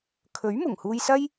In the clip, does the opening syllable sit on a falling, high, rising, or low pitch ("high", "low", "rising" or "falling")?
rising